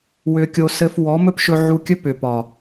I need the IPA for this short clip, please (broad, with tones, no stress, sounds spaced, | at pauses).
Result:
w ʏ˧ kʲ o˧ s ɘ˧ f w ɔ˨˦ m ɵ˦ p ʃ ɵ˧ ʕ u˧ kʲ ɵ˦ p ʏ˨ p ɒ˨